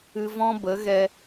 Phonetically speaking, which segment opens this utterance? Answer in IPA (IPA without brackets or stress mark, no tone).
ɨ